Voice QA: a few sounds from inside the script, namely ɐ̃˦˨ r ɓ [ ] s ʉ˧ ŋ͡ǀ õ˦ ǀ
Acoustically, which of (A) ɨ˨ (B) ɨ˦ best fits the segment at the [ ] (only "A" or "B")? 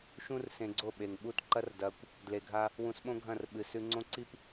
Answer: A